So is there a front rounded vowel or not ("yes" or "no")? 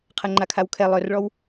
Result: yes